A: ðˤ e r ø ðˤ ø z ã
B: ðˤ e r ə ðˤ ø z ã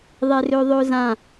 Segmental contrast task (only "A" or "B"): A